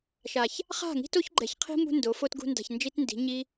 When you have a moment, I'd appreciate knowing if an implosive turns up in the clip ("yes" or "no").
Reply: no